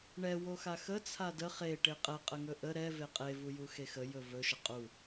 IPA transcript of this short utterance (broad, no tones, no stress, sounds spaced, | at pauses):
ɳ ɛ w o x a x ə t͡sʰ a d ə χ e ʈ e qʼ ɛ qʼ ə ŋ ɵ ʔ ə ɾ ɛ v e qʼ e v u j u x e x ə j ɵ v ɵ ʃ ə qʼ u